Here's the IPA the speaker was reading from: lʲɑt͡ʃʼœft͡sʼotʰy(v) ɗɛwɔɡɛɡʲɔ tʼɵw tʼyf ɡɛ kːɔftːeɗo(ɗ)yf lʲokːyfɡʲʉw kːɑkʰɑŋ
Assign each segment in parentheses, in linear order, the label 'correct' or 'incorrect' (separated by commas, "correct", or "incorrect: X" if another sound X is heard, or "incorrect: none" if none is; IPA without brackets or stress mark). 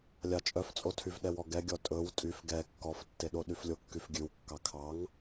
correct, correct